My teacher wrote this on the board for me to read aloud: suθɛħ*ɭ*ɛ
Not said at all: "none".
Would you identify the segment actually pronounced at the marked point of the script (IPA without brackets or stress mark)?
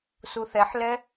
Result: l